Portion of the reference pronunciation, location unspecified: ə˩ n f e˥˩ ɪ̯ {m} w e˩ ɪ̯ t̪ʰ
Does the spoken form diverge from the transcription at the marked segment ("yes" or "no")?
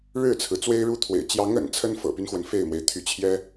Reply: no